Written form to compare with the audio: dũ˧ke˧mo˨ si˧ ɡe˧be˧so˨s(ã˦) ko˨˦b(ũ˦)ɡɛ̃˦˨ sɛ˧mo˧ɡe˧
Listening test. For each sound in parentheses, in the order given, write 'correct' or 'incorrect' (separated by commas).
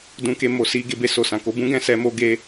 incorrect, correct